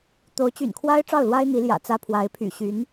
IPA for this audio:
t̪ o˧˥ ʊ̯ t͡ɕ y̰˨˩ n kʰ w a˥ ɪ̯ ʈ͡ʂ ɑ˥˩ ʊ̯ l w a˥ ɪ̯ n̪ i˧˥ l j ä̰˨˩ t͡s ä˥ pʰ w a˧˥ ɪ̯ pʰ y̰˨˩ ɕ y˧˥ n

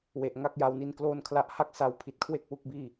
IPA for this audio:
w e˨˩ ʔ ŋ a˥˩ k̚ j a˧ w n i˦˥ n k l oː˥˩ n kʰ l a˥˩ ʔ h a˥˩ k̚ s a˦˥ w pʰ i˨˩ t̚ kʰ w e˥˩ k̚ w u˦˥ k̚ b iː˥˩

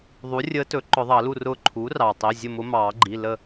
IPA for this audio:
ðˤ u˩˥ rʲ əː˧˥ t ɵ˩˥ ǃ ʊ˨˩˦ ðˤ ɑ˨˩˦ l u˥˨ r ʊː˥˨ ǃʰ uː˩˥ r ɑː˩ tˤ i˩˧˩ zʲ ə˥˨ m ʊ˧˥ m ɑː˨˩˦ ɡ͡ǃ i˩˧˩ l ə˥˨

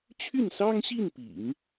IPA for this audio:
t͡ɕʰ y˥˩ n s ɑ˥ ŋ ɕ i˥˩ n p ḭ˨˩˦ ŋ

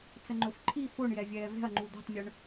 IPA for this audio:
t͡s ə ŋ͡ǃ ɵ f ǃʰ i f o ɳ j ɛ vʲ ɛː v ɛ̤ ɐ̯ ŋ͡ǃ u d̪ ɛ̤ tˤ mʲ ɵ ɳ

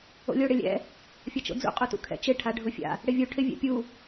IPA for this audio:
o̰ lʲ o ɽ ɪ lʲ ɛ̰ | fʲ ɐ t͡ʃ o̰ d͡z ṵ qʼ u t ṵ kʰ ɛ̰ t͡ʃ ɪ ʈʰ a ɖʱ ʊ fʲ a̰ | ɽ ɪ vʲ u ʈʰ ɪ vʲ ɛ̰ pʲ u

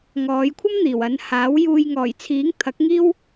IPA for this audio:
ŋ ɔː˨˧ j kʷʰ ɐ˥ m n̪ iː˨˩ w ɐ˨˧ n h aː˨˥ w j uː˨ j ŋ ɔː˨˩ j t͡sʰ iː˨˥ ŋ t̪ʰ ɐ˨˥ k̚ ŋ iː˥ w

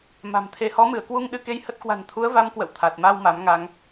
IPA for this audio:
m a̤˨˩ m t̪ʰ e˨˦ h ɔ˨˦ m ɨ˧˩ ə̯ k w u˧ ŋ ɗ ɨ˧ k e˧ j h ə˦˥ t̚ k w a̤˨˩ n t̪ʰ u˨˦ ə̯ v a˨˦ m k w ə̰˧˨ w t̪ʰ a˨˩ t̚ m a˧ w m a˨˦ m ŋ a˧ ŋ

